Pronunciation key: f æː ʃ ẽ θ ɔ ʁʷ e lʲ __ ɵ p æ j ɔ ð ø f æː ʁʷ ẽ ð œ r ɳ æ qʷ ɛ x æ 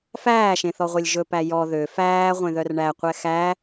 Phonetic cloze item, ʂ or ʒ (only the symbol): ʒ